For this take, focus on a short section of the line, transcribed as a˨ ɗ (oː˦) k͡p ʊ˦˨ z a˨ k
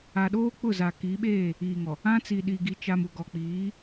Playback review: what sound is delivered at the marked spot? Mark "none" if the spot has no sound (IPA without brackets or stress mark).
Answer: oː˦